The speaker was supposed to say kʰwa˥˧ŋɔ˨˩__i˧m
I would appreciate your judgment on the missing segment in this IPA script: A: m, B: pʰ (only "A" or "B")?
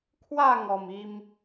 A